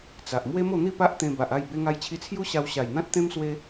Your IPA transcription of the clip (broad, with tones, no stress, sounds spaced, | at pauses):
t͡s a˨ ʔ m w e˦ m o˥˧ n̪ i˥˧ p a˦ ʔ t̪ ẽ˧ b a˨ ʔ a˥˧ j b e˧ ŋ a˧ j t͡ɕʰ i˧ t͡sʰ j u˦ ɕ a˧ w ɕ a˨˩ j n̪ ã˦ t̚ t̪ ẽ˦ m s w e˦